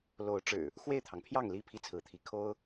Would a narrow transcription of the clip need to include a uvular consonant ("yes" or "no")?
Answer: no